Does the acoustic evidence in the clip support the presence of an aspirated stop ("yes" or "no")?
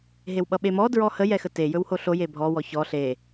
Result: no